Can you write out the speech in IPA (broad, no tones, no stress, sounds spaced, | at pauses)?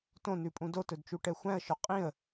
t õ n ʉ pʼ ũ d o t ɵ d t͡ʃ u ʈ ɛ xʷ æ̃ ə̯ ʃ ɵ qʼ ĩ ə̯